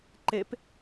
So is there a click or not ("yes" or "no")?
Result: yes